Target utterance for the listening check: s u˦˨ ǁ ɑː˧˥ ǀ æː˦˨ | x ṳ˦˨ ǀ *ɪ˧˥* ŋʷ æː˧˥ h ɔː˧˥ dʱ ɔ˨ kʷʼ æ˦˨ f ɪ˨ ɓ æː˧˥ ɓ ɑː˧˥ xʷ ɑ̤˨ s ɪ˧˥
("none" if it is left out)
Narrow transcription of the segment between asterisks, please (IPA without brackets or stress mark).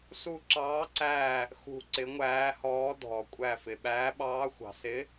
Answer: ɪ˧˥